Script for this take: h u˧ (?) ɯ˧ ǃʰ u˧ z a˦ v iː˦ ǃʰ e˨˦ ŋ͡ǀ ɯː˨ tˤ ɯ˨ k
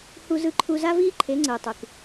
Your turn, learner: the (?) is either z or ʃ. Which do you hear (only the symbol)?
z